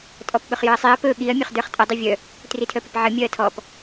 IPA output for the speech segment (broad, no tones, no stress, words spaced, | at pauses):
tʼɔpɓɵχjɵɐ̯sˤiɐ̯ pɵ ɠiɐ̯ mʲɵχdə˞χtʼə dˤivʲœ | tritʰœpəpʕə mʲœɐ̯tʰɔp